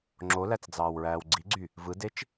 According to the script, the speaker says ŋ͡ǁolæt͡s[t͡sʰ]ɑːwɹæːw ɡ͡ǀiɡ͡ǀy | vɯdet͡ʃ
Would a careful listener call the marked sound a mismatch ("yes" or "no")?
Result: yes